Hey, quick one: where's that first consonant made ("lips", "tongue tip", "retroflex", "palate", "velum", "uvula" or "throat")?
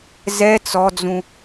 tongue tip